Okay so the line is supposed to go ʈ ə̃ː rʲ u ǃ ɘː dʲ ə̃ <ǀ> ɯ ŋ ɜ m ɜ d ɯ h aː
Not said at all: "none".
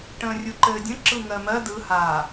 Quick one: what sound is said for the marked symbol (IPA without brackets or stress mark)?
ǁ